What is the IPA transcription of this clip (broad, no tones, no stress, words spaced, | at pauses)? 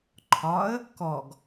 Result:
ǃʰɒə̯ | kɔɡ